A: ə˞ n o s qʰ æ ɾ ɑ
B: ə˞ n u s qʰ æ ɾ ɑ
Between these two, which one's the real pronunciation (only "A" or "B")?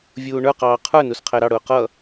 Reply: B